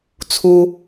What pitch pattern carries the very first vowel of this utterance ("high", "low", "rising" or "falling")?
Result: low